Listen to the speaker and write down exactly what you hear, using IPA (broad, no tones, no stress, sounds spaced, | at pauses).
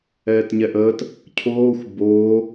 ɛː t ɲ ɛ ʔ əː t | cʰ oː xʷ b oː